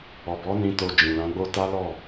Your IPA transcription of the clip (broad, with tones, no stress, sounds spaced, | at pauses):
ɔ˨ b ɔ˨˦ n ĩ˧ t o˧ d͡ʒ ĩ˨ l ã˨˦ ɡ͡b o˦ t a˦ l ɔ˦˨